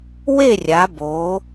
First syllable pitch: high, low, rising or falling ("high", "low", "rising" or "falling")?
falling